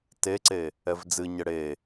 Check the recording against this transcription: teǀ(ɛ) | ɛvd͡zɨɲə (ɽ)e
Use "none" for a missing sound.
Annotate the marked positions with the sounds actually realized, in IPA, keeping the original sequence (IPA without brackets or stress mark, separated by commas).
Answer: e, ɽ